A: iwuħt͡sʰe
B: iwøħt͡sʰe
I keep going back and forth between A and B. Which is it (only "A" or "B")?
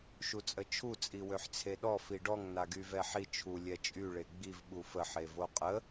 B